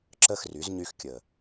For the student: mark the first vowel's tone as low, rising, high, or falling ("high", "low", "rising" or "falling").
falling